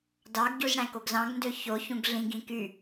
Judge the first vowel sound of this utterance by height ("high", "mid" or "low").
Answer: low